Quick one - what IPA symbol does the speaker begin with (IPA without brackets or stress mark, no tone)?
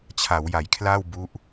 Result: t͡ɕʰ